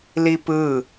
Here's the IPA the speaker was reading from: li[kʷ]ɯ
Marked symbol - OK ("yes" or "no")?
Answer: no